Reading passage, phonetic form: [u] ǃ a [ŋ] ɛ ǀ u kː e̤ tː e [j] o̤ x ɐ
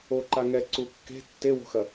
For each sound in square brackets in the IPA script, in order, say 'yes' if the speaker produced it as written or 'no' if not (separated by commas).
no, yes, no